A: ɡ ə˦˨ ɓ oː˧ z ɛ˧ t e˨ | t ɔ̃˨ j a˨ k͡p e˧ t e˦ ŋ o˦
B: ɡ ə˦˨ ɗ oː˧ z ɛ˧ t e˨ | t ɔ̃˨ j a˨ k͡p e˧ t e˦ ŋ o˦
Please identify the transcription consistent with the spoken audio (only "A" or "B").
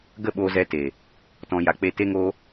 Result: A